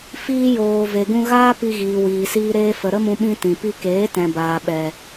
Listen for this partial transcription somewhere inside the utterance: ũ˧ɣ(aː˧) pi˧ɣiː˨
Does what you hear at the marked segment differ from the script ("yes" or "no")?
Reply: yes